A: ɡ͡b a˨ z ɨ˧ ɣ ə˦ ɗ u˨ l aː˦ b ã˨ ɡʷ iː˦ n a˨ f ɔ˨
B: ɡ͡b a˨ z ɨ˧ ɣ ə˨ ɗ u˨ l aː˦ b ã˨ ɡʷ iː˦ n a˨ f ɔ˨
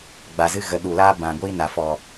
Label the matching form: B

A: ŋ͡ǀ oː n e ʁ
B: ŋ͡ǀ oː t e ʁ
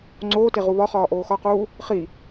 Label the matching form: B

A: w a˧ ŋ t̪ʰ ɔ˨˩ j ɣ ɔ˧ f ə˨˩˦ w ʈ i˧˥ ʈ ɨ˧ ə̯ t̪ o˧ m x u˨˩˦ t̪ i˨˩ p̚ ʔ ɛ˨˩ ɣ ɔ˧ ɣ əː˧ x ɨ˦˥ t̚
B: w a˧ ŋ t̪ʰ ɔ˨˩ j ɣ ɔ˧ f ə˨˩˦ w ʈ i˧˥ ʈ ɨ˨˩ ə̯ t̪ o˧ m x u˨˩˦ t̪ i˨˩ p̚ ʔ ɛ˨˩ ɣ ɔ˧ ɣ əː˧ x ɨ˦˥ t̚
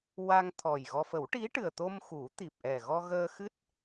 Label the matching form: B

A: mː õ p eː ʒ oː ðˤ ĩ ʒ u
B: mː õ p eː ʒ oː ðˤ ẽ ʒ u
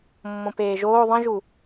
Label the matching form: A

